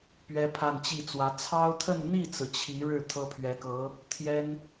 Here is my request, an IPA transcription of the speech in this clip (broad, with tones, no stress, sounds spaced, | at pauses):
p ɥ ɛ˥ pʰ a˥˧ n t͡ɕ i˥˩ t͡s w ä˧˥ t͡sʰ ɑ˥ ʊ̯ t̪ʰ ə˥˧ n n̪ i˥˩ t͡s ɹ̩˩ t͡ɕʰ i˧˥ ɻ ɻ̩˥˩ t̪ʰ ɤ˥ pʰ ɥ ɛ˧˥ k ɤ˧˥ | t̪ʰ j ɛ˥ n